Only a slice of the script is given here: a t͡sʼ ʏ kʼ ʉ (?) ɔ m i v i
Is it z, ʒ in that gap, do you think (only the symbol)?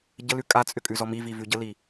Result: z